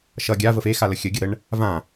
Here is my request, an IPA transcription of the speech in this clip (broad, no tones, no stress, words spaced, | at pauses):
ʃʌ ɡʲavəf exa ləxʲəɡʲə ɾəɳ | vã